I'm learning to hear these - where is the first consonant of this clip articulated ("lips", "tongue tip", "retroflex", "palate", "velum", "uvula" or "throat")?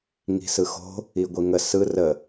velum